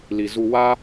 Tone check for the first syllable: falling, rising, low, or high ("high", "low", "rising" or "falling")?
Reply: low